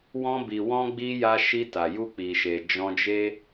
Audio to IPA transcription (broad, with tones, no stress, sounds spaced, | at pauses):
w ɔ̃˧ b i˨ w ɔ̃˧ ɡ͡b i˧ j a˧ ʃ i˧ t a˨ j u˧ k͡p i˨ ʃ e˨ d͡ʒ ɔ̃˧ d͡ʒ e˦